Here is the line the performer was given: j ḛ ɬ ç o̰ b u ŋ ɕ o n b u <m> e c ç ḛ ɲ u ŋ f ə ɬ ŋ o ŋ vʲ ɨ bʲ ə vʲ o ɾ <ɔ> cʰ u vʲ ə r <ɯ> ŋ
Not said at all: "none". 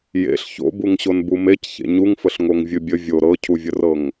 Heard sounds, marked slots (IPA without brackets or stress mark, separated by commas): m, ɤ, ɤ